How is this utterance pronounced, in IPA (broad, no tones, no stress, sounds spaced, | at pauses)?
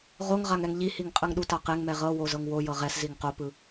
ʁ o ŋ ʁ a ŋ ɛ ŋ ʎ i h i ŋ qʼ ɯ ŋ ɗ u t a q e ŋ m ɛ ʁ ɤ w o z ɤ ŋ w o j ɤ ʁ ɛ s z i ŋ q o p ɯ